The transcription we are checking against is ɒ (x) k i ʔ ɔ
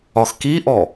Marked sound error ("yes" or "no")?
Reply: no